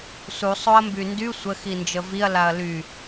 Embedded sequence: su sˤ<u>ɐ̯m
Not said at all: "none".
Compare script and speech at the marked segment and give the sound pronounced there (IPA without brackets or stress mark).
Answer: o